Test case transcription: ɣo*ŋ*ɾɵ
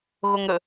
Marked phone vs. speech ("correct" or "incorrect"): correct